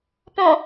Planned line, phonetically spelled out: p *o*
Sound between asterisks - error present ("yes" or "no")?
yes